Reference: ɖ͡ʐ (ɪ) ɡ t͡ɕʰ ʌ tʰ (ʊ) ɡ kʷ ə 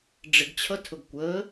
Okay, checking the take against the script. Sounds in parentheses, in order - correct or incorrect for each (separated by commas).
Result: correct, correct